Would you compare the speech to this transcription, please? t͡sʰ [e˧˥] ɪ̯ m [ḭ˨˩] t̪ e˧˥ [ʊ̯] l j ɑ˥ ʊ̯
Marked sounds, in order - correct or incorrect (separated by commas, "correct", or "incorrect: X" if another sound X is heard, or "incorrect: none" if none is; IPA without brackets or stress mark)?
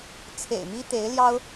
incorrect: ḛ˨˩, incorrect: i˥, incorrect: ɪ̯